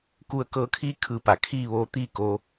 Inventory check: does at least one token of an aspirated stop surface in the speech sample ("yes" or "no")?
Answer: yes